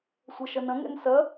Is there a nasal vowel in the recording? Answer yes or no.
yes